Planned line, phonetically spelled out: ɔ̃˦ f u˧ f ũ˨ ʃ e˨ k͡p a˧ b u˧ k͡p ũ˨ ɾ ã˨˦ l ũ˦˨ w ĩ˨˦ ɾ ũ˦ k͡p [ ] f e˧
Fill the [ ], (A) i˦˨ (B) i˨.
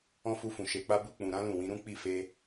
A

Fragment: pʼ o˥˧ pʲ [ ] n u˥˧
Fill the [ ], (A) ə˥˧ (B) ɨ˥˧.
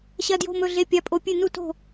B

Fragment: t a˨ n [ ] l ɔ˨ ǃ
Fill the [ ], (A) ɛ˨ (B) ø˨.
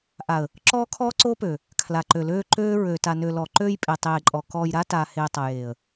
B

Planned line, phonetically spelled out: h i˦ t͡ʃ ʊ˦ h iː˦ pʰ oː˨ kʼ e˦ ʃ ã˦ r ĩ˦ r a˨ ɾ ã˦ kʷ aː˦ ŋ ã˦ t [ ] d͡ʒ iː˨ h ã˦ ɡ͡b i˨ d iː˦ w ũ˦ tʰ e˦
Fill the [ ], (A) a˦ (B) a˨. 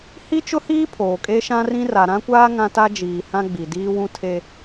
A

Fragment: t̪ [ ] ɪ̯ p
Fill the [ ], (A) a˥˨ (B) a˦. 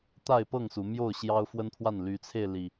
A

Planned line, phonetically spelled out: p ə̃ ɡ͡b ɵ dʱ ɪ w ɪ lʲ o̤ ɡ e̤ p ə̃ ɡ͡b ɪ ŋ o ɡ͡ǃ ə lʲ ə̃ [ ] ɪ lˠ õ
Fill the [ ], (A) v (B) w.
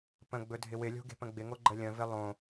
A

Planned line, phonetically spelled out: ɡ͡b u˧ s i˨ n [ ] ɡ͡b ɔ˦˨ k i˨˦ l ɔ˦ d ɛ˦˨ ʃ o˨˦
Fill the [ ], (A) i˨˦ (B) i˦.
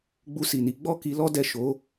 A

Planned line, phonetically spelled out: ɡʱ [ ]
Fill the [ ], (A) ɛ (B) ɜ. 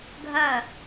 B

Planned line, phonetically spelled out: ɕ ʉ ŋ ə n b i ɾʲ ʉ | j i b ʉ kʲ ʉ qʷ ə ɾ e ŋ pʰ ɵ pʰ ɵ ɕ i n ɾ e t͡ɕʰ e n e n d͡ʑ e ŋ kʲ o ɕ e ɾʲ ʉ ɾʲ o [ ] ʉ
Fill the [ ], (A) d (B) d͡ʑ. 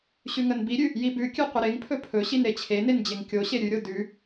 A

